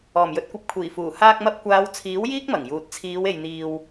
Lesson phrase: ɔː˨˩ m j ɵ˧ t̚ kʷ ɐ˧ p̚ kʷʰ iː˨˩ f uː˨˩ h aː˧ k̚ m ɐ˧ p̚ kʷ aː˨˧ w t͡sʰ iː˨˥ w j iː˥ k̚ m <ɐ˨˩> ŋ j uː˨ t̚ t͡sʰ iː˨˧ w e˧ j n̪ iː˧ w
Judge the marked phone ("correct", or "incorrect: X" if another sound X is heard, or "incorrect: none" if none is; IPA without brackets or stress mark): correct